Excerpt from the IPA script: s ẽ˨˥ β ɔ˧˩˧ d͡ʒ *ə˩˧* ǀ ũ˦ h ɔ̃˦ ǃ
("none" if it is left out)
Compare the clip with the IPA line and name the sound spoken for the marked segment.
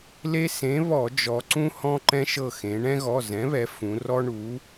ɔ˩˧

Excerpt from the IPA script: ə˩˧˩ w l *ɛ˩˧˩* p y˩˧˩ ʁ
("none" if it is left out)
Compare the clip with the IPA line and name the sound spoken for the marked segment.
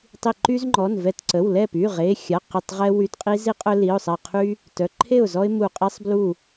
ɛ˥˨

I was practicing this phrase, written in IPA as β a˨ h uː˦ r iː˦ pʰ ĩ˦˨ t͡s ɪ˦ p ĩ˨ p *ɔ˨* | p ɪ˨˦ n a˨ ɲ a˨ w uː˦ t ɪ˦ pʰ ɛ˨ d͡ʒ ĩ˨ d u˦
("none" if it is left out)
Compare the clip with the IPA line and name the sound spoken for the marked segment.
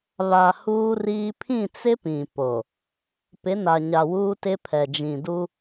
o˨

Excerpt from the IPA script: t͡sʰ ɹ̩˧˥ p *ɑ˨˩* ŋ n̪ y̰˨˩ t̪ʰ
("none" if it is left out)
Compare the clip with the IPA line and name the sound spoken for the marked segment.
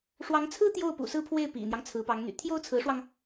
ɑ˧˥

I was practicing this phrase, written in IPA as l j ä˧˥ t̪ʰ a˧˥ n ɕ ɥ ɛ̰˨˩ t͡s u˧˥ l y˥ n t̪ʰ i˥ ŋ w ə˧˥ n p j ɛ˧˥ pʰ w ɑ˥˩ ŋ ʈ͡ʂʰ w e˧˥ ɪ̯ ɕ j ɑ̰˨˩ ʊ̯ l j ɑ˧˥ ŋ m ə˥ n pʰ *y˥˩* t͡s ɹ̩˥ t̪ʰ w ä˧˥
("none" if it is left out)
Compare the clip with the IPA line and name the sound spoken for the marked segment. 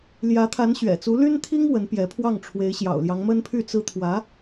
y˥˩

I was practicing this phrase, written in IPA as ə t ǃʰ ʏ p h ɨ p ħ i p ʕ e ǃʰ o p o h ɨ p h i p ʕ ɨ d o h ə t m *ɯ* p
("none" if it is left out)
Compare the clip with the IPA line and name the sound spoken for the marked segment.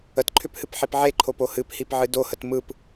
ɯ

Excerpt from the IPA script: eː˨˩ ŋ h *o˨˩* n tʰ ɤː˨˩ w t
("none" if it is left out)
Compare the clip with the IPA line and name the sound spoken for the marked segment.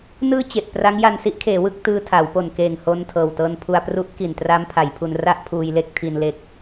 o˧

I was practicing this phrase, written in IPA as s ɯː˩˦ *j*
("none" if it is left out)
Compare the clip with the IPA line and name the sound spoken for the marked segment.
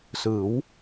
w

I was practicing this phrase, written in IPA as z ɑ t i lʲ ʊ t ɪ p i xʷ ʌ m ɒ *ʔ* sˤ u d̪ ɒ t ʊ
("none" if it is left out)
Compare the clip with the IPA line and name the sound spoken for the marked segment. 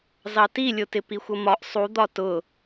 ʔ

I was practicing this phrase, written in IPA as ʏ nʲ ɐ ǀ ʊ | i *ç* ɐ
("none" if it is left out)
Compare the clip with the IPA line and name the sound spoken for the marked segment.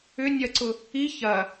ç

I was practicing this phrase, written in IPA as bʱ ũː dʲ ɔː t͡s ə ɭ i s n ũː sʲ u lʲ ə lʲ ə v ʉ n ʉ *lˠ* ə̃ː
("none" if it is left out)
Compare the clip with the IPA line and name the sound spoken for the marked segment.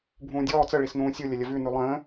lˠ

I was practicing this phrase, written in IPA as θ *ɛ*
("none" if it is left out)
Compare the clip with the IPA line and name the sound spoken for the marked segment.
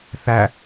æ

